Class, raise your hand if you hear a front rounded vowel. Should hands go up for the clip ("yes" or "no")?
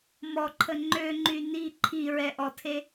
yes